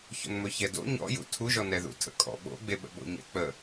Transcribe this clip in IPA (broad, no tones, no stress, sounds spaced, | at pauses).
ç o̰ n m ɵ ç ɛ d o̰ ɲ ɔ̰ j ṵ tʰ u ʒ ɔ n ɛ ð ṵ tʰ ə̰ kʼ ɔ̰ ɓ o̰ ɡ͡b e ɓ ə̰ ɓ o̰ ɲ ɛ̰ k͡p ə